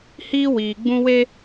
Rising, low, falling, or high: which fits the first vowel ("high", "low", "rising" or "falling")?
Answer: high